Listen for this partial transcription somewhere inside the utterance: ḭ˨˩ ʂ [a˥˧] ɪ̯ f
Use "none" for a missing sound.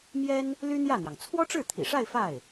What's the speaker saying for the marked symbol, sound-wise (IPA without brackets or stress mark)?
a˥˧